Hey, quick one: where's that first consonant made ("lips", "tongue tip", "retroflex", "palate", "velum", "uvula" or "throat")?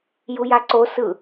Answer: palate